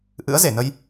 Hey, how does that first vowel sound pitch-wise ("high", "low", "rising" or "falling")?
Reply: rising